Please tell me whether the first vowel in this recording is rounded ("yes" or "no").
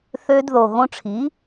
yes